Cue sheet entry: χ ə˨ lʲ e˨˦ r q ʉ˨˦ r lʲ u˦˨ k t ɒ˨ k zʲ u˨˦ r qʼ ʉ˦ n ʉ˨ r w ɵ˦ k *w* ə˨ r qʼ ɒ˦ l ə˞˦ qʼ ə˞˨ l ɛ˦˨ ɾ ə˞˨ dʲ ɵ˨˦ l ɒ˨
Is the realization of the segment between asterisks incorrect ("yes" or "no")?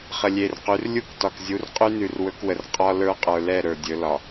no